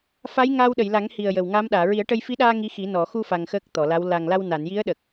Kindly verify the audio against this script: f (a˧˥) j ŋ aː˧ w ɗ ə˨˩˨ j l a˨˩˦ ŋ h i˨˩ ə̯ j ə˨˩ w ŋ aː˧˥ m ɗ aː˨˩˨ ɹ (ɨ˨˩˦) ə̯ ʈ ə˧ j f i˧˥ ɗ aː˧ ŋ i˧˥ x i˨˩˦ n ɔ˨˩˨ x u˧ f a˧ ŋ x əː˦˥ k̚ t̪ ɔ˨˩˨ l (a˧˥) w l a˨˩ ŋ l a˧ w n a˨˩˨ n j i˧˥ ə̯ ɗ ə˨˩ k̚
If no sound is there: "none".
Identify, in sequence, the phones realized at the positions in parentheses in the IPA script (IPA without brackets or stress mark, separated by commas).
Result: a˧˥, i˨˩˦, a˧˥